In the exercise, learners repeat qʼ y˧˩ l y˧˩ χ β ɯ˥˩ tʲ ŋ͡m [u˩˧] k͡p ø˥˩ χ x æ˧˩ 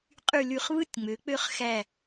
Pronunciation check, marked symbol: incorrect: ø˩˧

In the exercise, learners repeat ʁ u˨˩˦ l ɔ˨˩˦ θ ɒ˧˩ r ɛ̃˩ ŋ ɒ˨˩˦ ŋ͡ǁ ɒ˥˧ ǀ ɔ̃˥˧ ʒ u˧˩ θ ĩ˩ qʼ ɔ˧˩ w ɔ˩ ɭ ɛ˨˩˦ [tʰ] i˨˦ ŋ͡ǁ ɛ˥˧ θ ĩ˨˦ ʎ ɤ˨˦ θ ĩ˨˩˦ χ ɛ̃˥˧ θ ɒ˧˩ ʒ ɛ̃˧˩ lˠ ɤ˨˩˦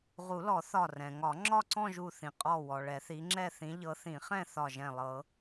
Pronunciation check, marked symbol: incorrect: θ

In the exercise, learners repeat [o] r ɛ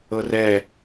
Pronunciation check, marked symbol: incorrect: ɤ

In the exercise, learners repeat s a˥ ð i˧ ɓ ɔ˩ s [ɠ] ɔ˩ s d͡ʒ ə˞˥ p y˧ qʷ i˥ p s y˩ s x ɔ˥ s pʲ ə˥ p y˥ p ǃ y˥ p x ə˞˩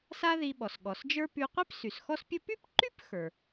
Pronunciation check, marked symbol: correct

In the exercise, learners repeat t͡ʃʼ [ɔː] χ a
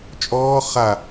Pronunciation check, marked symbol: correct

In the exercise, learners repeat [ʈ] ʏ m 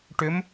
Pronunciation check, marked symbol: correct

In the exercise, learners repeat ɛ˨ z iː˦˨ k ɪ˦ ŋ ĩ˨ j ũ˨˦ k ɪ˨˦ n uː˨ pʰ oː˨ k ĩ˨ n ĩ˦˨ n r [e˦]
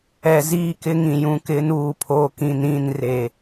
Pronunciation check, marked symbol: incorrect: e˨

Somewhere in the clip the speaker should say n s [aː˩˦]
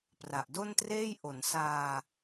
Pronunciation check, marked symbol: incorrect: aː˧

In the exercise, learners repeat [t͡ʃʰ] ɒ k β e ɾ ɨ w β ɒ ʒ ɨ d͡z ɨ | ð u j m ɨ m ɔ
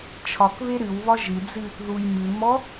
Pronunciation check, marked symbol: correct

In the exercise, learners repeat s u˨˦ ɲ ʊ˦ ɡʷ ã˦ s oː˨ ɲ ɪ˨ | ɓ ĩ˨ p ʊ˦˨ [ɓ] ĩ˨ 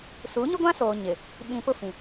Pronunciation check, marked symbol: incorrect: f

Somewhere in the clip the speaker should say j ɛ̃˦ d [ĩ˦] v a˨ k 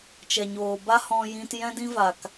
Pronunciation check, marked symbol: correct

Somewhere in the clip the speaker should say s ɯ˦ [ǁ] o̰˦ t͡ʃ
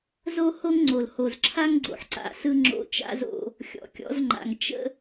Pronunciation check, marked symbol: incorrect: ŋ͡ǁ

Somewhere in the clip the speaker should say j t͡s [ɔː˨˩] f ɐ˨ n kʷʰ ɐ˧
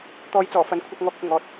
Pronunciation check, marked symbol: correct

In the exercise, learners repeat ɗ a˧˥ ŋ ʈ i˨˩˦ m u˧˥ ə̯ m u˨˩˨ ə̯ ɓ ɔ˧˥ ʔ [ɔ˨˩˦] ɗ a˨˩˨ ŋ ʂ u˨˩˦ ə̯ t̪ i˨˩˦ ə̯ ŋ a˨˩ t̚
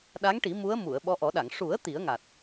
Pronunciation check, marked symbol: correct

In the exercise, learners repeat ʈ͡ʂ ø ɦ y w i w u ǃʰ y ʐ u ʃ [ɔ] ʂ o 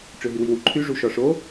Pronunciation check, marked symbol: correct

